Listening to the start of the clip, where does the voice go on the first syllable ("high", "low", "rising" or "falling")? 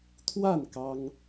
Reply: falling